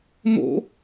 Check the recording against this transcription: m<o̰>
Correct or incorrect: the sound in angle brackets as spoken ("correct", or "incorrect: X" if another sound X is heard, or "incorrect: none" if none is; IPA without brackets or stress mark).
correct